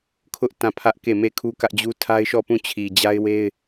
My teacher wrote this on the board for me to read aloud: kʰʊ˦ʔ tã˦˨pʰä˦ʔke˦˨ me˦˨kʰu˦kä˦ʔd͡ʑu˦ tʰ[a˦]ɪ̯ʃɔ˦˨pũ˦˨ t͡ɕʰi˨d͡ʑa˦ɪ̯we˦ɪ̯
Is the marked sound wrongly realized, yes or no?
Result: no